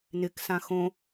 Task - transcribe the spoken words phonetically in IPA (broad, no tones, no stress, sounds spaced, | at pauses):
n ɪ k s ã x õ